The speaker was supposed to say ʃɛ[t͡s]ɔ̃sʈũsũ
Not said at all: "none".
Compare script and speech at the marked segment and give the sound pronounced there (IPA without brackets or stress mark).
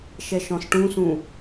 ʃ